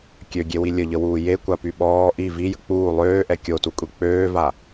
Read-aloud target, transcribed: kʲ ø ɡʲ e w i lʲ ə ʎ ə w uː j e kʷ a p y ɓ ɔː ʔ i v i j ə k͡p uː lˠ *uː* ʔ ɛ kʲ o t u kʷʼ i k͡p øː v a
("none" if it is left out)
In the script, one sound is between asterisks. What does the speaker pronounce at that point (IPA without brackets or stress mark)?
øː